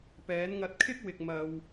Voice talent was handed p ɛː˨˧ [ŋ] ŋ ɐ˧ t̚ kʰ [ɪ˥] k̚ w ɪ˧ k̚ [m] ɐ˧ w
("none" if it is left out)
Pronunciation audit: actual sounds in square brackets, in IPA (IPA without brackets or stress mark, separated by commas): n, ɪ˥, m